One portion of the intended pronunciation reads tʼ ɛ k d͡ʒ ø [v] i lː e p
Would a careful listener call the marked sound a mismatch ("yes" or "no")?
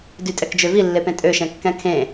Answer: no